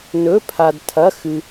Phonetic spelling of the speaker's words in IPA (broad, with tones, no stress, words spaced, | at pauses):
nɵ˩˧˩pʰa˩dtʰɐ˩˧˩ xɨ˩